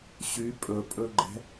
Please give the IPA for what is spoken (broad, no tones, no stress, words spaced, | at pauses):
ɕy pʼɵpʼɵɡ͡ǃɛ̤